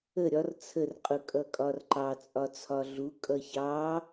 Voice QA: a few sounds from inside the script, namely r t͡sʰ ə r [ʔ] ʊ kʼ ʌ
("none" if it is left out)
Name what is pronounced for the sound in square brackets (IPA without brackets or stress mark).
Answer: qʼ